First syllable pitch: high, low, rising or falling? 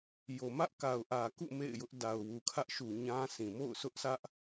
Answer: low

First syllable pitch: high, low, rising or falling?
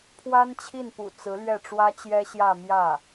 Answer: high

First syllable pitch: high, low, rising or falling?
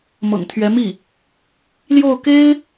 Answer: low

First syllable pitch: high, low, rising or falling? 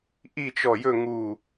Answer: falling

